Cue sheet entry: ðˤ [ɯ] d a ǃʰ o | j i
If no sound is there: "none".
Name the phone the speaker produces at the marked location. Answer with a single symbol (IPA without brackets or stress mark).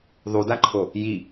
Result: u